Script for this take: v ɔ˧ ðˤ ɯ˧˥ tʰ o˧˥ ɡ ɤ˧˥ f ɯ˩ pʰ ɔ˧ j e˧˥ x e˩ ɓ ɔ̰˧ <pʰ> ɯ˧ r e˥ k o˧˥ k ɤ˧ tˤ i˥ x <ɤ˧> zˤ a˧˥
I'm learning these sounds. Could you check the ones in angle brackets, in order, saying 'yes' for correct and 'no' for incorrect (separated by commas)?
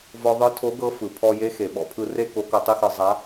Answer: yes, yes